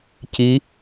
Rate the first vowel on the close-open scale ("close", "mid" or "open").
close